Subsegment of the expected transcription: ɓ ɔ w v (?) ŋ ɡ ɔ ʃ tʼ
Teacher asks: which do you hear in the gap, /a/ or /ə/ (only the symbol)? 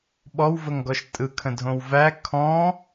ə